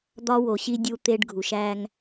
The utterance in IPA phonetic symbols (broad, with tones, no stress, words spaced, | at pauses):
d̪ɒ˦wo˨ɕi˦ dʲu˦t̪e˦ɖ ɡʱu˨ʃ æ˦ŋ